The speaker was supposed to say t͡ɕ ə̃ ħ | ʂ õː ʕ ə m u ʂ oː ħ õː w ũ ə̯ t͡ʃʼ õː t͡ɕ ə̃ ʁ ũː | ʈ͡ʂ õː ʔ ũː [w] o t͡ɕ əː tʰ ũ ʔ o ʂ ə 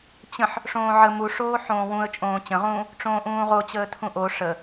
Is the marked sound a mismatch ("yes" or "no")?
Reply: yes